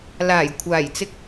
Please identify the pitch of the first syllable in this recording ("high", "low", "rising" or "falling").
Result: low